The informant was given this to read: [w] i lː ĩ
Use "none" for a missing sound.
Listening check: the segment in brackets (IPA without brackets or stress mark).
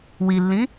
w